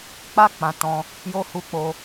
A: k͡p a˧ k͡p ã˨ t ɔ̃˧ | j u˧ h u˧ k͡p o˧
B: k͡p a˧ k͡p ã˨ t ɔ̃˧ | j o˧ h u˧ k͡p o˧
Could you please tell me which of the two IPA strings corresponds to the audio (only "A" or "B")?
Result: B